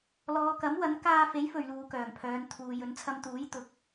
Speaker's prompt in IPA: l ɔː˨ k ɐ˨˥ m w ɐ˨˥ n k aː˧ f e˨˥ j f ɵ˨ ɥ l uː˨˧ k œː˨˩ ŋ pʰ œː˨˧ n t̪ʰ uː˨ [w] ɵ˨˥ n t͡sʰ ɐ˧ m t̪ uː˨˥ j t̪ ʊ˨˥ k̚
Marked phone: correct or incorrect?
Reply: incorrect